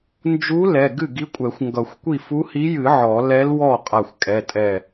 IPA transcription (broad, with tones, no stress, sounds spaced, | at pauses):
n d͡ʒ u˧˥ l ɛ˩˧˩ ɡ ɨ˥˩ ɡ i˧˥ kʷʼ ɛ˨˩˦ xʷ ŋ ɡ ʌ˨˩˦ xʷ kʷ i˥˩ f u˧˥ h i˧˥ j ɨ˨˩˦ ʕ ɔ˨˩˦ l ɛ˧˥ l w ɔ˥˩ qʼ a˧˩ xʷ kʼ ɛ˩˧˩ tʼ ɛ˧˩